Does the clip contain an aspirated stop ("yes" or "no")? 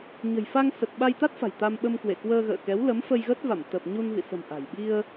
no